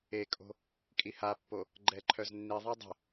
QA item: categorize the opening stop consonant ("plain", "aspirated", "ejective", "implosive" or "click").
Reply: ejective